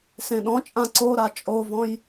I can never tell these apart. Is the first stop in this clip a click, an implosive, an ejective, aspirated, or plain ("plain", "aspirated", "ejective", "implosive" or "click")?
implosive